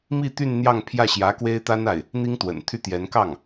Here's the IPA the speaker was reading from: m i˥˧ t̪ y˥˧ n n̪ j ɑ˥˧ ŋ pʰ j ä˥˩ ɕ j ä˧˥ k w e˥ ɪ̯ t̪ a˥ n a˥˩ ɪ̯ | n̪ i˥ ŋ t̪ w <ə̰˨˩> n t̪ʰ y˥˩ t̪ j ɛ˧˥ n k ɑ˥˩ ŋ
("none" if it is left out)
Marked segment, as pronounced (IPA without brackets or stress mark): ə̰˨˩